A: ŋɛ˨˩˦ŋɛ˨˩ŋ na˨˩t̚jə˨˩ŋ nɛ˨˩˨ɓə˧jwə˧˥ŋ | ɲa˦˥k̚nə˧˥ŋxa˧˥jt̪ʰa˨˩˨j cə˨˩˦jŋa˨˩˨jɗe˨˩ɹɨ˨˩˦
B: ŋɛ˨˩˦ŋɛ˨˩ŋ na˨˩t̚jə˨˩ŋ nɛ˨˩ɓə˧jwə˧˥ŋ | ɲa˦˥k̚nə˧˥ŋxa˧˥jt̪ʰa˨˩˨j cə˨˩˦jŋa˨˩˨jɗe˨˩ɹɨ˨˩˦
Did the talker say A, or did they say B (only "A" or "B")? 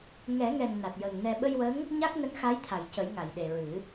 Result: B